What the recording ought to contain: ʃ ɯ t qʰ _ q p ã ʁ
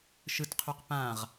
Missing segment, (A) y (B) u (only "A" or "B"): A